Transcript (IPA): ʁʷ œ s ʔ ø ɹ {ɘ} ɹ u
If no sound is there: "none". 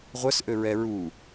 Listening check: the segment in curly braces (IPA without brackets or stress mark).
ɛ